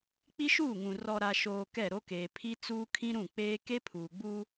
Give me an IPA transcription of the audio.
k͡pi˦ʃuː˦˨ŋũ˨ rɔ˨ɾa˨ʃoː˨ kɛ˦˨ɾo˦keː˨ pʰi˦t͡suː˦kʰĩ˦ɾũ˦˨ k͡peː˦ ke˦pʰuː˨ɡ͡buː˦

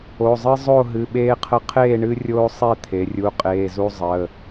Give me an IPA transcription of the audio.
o˩˧˩zˤɨ˦ zˤo˥˨ ɦɨ˩˧˩ɓeː˦qʰə˦ qʰeː˥˨ɳɨ˦rʲoː˦ sˤe˥˨t̪ʰe˩˧rʲu˩˧˩ qʼeː˩˧˩zu˦zˤəː˩˧˩

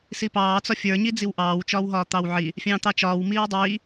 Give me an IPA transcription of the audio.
sipɑːt͡sɒ fʲə˞ɲi d͡ziwʔɑːwt͡ʃɒːwɦɒː t̪ɑwʕi | fʲɑ̃ːt̪ɑt͡ʃɒːw miːwdˤiː

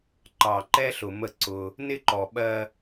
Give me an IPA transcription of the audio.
ǃɑ˨ǃɛ˦ ɬʊ˨mə˦˨ ǀʊ˦ | nɪ˦ǃɔ˨ɓɜ˦

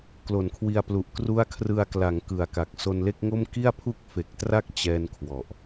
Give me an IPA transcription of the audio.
klo˩˦nkʰwi˧a̯plu˨˩ʔ kru˦˥a̯kʰrɯ˧a̯ kla˩˦ŋ kɯ˨˩a̯ka˨˩k̚ so˧nle˥˩k̚ŋo˥˩m ki˥˩a̯pʰu˥˩k̚fe˨˩k̚tra˥˩k̚ t͡ɕɛː˥˩nkʰwɔ˨˩ʔ

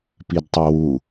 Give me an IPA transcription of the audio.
pidtˤowu

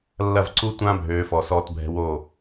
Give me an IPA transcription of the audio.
lːɐ˦˨v ǀu˦tʷã˦ bʱøː˨˦fɔ˨sɔː˧t bʱɛ̤˧wo˦˨

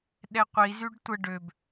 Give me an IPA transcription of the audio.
ɗɛqʷizyɖ tʷə ɖøb

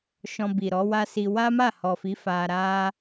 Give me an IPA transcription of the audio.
ʃɔ̃˧bi˨ ɾɔ˨˦wa˦si˧ wa˦ma˦˨hɔ˨fi˨˦ fa˧ɾa˦

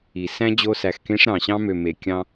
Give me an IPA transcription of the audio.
i˨sæ̃˦d͡ʑo˧ sæ˨xkẽ˧ʂɾɑ̃˨ɕɑ̃˧ mø˨me˨ kʲɑ̃˧

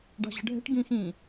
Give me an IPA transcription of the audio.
ɖɑ̤ʑə̤ɖʱɛ̤ʈ ɡĩxĩ

